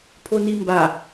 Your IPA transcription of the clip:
pʰ o n i m b a

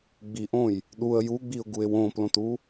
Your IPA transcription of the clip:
ɡ͡b i ʔ õ j | ɗ u ə̯ j u ɡ͡b i ʊ̯ ɡ u ɪ̯ w õ p l õ t u

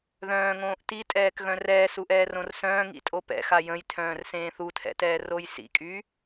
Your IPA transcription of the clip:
ð œ̃ː ŋ õː ʔ t i tʼ ɛː k ɣ œ̃ r ɛː s u ʔ ɛː r õ r s œ̃ː ŋ ḭ tʼ o p ɛ̰ x a j ə̃ j tʰ œ̃ː r s ẽː θ u tʰ ɛ̰ t ɛː r o j s ḭ kʼ y

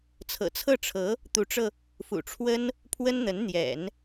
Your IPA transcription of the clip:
t͡sʰ ɤ̰˨˩ t͡sʰ ɤ˥˩ ʈ͡ʂʰ ɤ˧˥ | t̪ u˧˥ ʈ͡ʂ ɤ˧ | f ṵ˨˩ ʈ͡ʂʰ w ə˥ n | pʰ w ə˥ n n̪ ə˧˥ n n̪ j ɛ̰˨˩˦ n

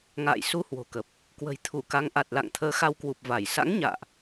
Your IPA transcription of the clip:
ŋ a̰ː˧˨ j s u˧ h w o̤˨˩ k ə˨˩ p̚ | k w ə̤˨˩ j t̪ʰ u˧˩ k a˨˦ ŋ ʔ a˨˩ t̚ l a̰˧˨ ŋ t̪ʰ əː˨˦ x a˧ w k w u˨˩ p̚ v a˧˩ j s a̰˧˥ ŋ ɲ a̰ː˧˨ ʔ

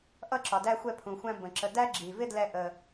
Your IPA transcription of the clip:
ʔ ʌ˥ ǁ ɒ˩ d æ˥ xʷ ɛ˥ pʰ ũ˩ xʷ æ̃˥ b ə̃˩ ǁ ə˧ d æ˥ ɡ͡ǁ i˩ v ɪ˥ d l ɛ˧ ʔ ə˩

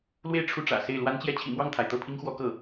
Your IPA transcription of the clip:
l w e˥˧ ɪ̯ ʈ͡ʂʰ u˥˩ ʈ͡ʂ ä̰˨˩ s e˥˩ ɪ̯ l w a˥ n t͡ɕ j ɛ˥ t͡ɕʰ ḭ˨˩ m w ɑ˥˩ ŋ t̪ʰ a˩ ɪ̯ t̪ ɤ˥˩ pʰ i˥ ŋ x w ɔ˧˥ k ɤ˥˩

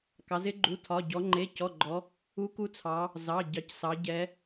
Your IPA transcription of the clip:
k ɑ˩˧ z ɪ˧˥ ɡ͡ǃ u˩˧˩ tʰ ɒ˩˧˩ ɟ ɔ˩˧ ŋ͡ǃ e˩˧˩ c ɔ˩˧˩ ɡ͡ǃ ɔ˩˧ | u˧˥ k u˧˥ t͡sʰ ɑ˩˧ | z ɑ˩˧˩ ɟ ɑ˩˧ c s ɑ˩˧ ɟ ɛ˩˧

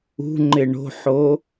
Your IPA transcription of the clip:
ṳ ŋ͡ǃ ɪ ɳ o̤ ħ o

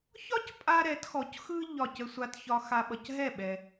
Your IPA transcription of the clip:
ç ɒ˥ c pʼ a˥ ɾ ɛ˩˥ t x ɔ˩˥ c x ɯ˥ ʎ ɒ˥˩ c ə˥ sʷ a˧ t ç ɒ˧ x a˧ ɓ ʌ˩ c ɦ ɛ˥˩ ɓ ɛ˩

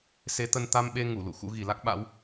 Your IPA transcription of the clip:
s e˨˦ t̪ ə˧ n t̪ a˧ m ɓ e˧ ŋ u˧˩ l ṵ˧˨ x ṵ˧˥ ɣ i˨˩ l a˦˥ k̚ ɓ a̰˧˥ w

